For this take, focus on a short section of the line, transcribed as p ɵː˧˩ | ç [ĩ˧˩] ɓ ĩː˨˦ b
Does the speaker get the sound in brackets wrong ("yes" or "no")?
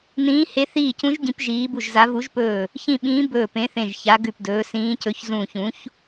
no